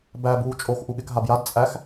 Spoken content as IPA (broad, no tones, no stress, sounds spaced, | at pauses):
b æ b uː t͡ʃʼ o x ʔ u ɠ ɪ k ɦ a b j a d t͡sʼ æ x